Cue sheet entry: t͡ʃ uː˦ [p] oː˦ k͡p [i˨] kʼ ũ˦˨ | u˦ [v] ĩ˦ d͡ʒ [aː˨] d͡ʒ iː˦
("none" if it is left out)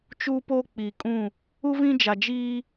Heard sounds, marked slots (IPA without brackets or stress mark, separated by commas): p, iː˨, v, a˨